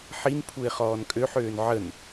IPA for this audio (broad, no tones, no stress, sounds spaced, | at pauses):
ħ i n pʰ u ɪ̯ χ ɔː n kʼ ø ħ øː n ʕ ə n